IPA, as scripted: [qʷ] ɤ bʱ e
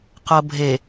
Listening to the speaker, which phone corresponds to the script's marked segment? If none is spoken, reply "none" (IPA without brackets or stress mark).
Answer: q